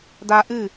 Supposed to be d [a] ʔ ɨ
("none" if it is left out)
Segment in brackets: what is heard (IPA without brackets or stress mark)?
a